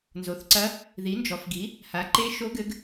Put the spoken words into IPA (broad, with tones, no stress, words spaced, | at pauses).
nzo˩˥θǀɐ˧˥ | ði˩˥nd͡ʒɔ˩˥fɡi˩˥ | ha˩˥ǃe˧˥ʃo˧˥ ɡɘ˧˥ɡ